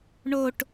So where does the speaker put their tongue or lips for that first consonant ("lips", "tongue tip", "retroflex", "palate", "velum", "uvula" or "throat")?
retroflex